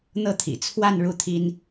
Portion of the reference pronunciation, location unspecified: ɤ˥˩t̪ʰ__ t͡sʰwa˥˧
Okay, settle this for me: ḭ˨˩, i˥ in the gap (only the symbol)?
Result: ḭ˨˩